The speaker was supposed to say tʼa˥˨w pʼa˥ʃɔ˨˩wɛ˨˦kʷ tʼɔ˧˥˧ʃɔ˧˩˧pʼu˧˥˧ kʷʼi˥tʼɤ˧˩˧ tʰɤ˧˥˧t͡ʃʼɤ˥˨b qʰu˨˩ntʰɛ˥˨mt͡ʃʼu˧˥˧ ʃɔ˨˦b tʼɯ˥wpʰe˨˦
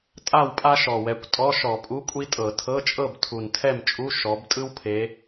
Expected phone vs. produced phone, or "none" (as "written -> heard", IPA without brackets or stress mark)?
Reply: qʰ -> tʰ